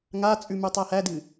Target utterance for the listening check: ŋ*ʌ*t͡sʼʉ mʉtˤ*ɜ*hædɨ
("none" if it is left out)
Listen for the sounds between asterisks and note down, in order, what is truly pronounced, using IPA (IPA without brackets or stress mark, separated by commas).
a, æ